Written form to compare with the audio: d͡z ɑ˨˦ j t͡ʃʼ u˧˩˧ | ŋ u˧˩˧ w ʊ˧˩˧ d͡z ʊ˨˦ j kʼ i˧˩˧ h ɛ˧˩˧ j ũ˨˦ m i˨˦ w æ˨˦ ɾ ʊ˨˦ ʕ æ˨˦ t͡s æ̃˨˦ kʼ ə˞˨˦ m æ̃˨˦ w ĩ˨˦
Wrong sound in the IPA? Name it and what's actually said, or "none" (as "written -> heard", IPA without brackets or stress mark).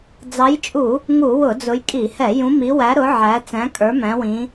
none